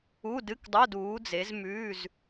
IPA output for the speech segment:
u˧˥˧dɨ˧˥˧kdˤo˧˥˧d uː˨˦d͡ze˨˦z mʉː˧˥˧z

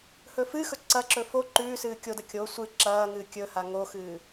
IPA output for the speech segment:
hɵfɨxɵ ǀɐǁɵ fo ǃʉː sɨːkʲodɐ kʲo sʷɨ ǁɐːŋɨː kʲɵha ŋoxɨː

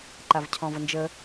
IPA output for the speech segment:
ǃavcʰɔ̃vənd͡ʒə

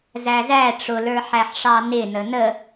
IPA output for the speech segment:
zæzæ ʈ͡ʂʊ lə˞ħæħʂɑnɪ nənə

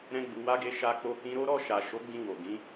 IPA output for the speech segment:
ɾɛ̃˦ɡ͡bu˧wa˦ɡe˦ ʃa˧k͡po˧kĩ˧ɾo˦ ɾɔ˧ʃa˨ ʃo˨˦ɡ͡bĩ˧ wo˨ ɡĩ˨˦

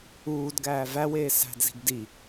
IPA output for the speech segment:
uːdɡæː væweː sæ̤dzi̤ɡ di

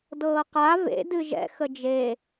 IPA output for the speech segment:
dɤːqa vḛ dɨʒɛ̰ xəd͡ʒe

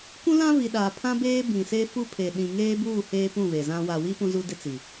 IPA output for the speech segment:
kʷũ˦lã˦vi˨ ɗaː˨pʰã˦beː˦ bĩ˨se˦fu˦ pʰe˨ɗĩ˨ ŋeː˦buː˦˨ heː˦pũ˦˨ βe˨zã˦ wa˨wi˦ pũ˦zu˦dɪ˦t͡si˨

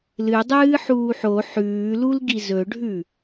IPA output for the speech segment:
lɨdˤɨː ħuːħo ħʉːlulɡi zɵɖʱʉ

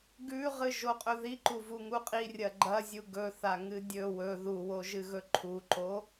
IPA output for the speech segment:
ɡʉʁɨ ʒoqʼɵðiǃu vuŋuqʼi rʲɐɡ͡ǃɐ zʲuɡɵθaŋɨ dʲɵ wɵ ðuwoʒɨɣɵ ǃʰuǃo

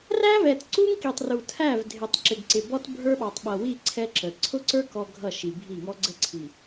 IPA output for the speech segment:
ræ˦vɛ˨t ǀu˦ŋki˨tˤru˨ tʰæ˦˨vdʱɪ˨tˤ ǁɪ˨ɡǀɪ˨bɔ˦t bʱə˞˦ɓɑ˨tˤɓʌ˨wi˦˨ ǀʰɛ˦ǁə˨ ǀʰʊ˦ǀə˞˦kɔ˨ ɡʱʌ˦˨ʃi˨bʱi˦˨ŋɔ˦ ɡ͡ǀə˦ǀʰi˨

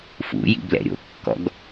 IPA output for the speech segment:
fṵjḭ blɛ̰ɾʲo̰kːɔ̰ɡ

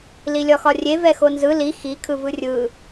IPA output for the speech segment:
lilʲɒxɒrʲe vɛxonzɯ li xi kʰɯvɯrʲɯ

